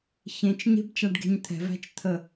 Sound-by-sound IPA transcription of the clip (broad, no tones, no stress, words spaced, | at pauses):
çẽt͡ʃɲe̤b t͡ʃaɖɡe̤ɲt̪ʰɛ̤væ̤t͡ʃ t̪ʰə